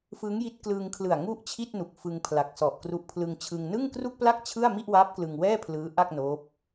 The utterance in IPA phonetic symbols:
fɯ˦˥ŋji˦˥t̚klɯː˧ŋkʰlɯ˨˩a̯ ŋu˥˩ʔt͡ɕʰi˥˩t̚nu˨˩k̚ fɯ˧ŋpʰla˨˩k̚sɔ˨˩ʔkru˦˥ʔ pʰlɯ˧ŋt͡ɕʰɯ˧ŋ nɯ˥˩ŋkru˥˩k̚pla˥˩k̚ t͡ɕʰɯ˥˩a̯ mi˥˩ʔwa˦˥p̚ klɯ˧ŋwɛː˥˩pʰlɯː˦˥ ʔa˥˩k̚noː˦˥p̚

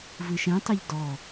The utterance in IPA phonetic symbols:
vɨʃɛ̃tˤeʎ dɔ

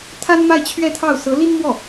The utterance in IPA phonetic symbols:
t̪ʰa˥nma˥˧ɪ̯t͡ɕʰɥɛ˥˧t̪ʰɑ˥˩ʊ̯ sɤ˧˥li˥nmwɔ˥˩

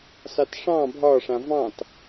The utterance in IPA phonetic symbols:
sɑtʂɑ̃ bʱɒ ʂãvɑ̃t

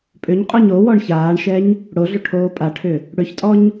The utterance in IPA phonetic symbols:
pʼʏɲqʼɔɲ owɔɳ çaːɳʃɛɲ | ɽoɮʏ ʈʰoːpʼaʈʰʏ | ɽʏçtʼɔɲ

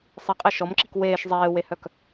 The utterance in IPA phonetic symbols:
sˤiqʼɛ ʃɔmǁik weːʃ zˤeːwehœk

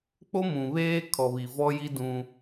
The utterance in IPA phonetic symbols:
k͡po˦mũ˨βeː˦ kʰɔ˨βi˨vɔ˦ji˦ dũ˦

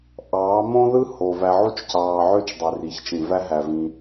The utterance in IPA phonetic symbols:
ʔɑː˨˦mõ˦ðɯ˦ho˨ væ˧ʕu˦t͡ʃcɑː˧ ʕø˦t͡ʃ dˤø˨ri˨çt͡ʃĩ˨ væ˦ɦæ˧vĩ˧

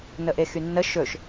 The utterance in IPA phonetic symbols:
nəʔexynːə ʃɵʃ

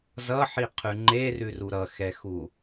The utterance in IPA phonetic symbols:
zʌħiqʰʉ ŋ͡ǃerʉru ɾʌxɛxu

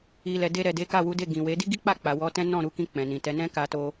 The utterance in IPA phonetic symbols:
i˨lɛ˨ de˧ɾɛ˨de˨˦ ka˦˨wu˨˦de˦˨ ɡĩ˨we˨˦ di˦ɡi˦k͡pa˦˨k͡pa˨ wɔ˧tɛ̃˦ nɔ̃˦˨ɾu˧kĩ˧ k͡pɛ̃˨nĩ˨tɛ˨˦ nɛ̃˦ka˧to˧

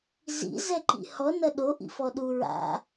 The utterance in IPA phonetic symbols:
zḭ zɛǃḭhɔ nɐɗo ʔḭfɔɗu ɹa̰

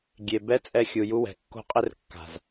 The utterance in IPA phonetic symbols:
ɡʲe˨ bɛ˦t͡sʼɛ˧xʲu˨ ju˧wɛ̤˨ kːo̤˧qʼɘ˧r kːa̤˨z

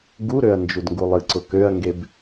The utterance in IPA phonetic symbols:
ɡuɾøɐ̯ nd͡ʒudŋɡulˠɨǀʊ køɐ̯ŋɡeb

